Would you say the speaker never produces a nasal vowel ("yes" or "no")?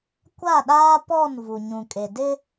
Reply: no